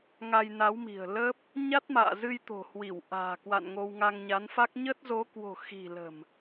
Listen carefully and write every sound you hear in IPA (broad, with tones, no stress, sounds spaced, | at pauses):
ŋ a˧ j n a˨˦ w m i̤˨˩ ə̯ l ə˦˥ p̚ | ɲ a˦˥ t̚ m a̰ː˧˨ z ɨ˧ j t̪ o̤˨˩ h w i˧˩ w ʔ a̤ː˨˩ k w a̰˧˨ n ŋ o˧ w ŋ a˧ ŋ ɲ a˨˦ n f a˦˥ k̚ ɲ ə˦˥ t̚ z o˨˦ k w o̤˨˩ x i̤˨˩ l ə̤˨˩ m